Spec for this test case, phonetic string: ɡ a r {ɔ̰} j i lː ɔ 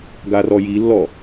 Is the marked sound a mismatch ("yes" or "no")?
yes